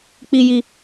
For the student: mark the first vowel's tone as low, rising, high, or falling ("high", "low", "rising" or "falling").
low